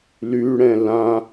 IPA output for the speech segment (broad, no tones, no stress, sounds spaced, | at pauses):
l y ɽ ɛ̃ l ã